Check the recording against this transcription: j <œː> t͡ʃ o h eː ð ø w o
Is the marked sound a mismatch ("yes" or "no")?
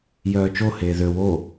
no